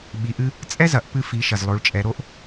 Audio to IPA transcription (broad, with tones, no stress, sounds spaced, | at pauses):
ɓ i˩˧ ʔ ɨ˧ | t͡sʼ ɛ˥ z ɐ˩˧ ʔ p ɨ˧ f i˩˧ ʃ ɐ˩ z lˠ o˩˧ ɭ t͡ʃʼ ɛ˩˧ ɾ o˧˥ ʔ